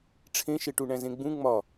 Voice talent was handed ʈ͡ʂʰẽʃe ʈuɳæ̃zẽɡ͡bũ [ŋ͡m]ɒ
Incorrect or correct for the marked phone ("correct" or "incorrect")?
correct